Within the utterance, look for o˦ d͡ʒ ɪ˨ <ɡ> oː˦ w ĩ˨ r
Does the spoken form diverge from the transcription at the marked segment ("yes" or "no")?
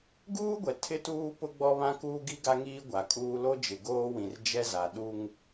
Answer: no